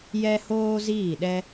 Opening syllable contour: high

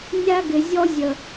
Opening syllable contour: high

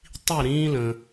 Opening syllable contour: falling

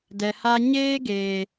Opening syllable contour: low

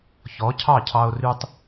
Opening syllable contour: rising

